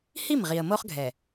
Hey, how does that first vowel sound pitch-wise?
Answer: falling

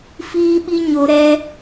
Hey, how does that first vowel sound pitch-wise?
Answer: high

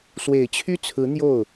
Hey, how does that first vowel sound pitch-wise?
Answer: low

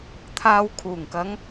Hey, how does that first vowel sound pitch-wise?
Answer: low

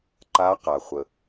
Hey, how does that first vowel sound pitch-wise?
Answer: rising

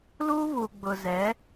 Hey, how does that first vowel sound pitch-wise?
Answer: high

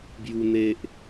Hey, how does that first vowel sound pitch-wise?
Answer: high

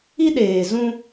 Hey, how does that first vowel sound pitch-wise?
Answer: high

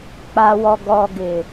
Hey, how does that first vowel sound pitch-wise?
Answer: low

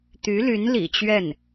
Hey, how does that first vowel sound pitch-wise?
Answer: rising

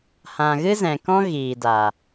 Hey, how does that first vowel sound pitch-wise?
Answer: low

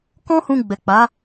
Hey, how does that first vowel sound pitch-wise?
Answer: high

